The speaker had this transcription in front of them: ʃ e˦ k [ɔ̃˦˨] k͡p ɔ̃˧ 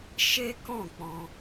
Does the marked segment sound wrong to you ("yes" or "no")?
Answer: no